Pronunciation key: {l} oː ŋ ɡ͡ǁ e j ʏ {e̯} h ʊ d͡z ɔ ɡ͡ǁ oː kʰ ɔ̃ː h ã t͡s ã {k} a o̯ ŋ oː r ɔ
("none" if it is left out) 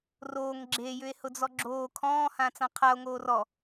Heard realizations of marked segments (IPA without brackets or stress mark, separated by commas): r, e̯, qʰ